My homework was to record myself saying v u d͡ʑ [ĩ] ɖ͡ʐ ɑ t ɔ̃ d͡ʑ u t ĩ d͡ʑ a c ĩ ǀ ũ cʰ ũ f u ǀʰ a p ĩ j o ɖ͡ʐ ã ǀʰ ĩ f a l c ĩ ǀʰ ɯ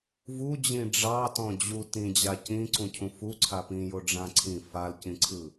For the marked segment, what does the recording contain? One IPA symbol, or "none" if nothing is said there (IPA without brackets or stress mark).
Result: ĩ